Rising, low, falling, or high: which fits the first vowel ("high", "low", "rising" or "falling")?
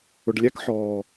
low